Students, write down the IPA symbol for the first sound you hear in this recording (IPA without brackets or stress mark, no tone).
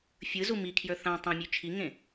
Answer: fʲ